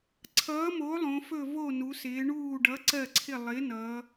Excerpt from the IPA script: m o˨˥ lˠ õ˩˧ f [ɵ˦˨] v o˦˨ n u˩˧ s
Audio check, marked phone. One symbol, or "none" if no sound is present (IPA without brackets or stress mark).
ɵ˦˨